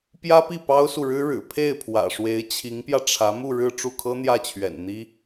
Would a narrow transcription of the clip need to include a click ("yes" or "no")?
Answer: no